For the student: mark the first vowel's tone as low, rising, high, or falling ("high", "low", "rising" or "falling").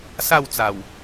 falling